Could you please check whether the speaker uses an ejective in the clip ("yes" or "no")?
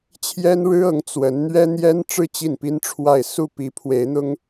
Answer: no